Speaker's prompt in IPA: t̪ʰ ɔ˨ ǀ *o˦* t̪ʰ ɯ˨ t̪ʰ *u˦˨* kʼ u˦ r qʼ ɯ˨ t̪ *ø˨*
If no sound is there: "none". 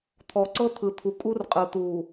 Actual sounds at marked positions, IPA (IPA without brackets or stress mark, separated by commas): ɤ˦, u˨, u˨